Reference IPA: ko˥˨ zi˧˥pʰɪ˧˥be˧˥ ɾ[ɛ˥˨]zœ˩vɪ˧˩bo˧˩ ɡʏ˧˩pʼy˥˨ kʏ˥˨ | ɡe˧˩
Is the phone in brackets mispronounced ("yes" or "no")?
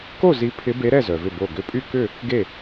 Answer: no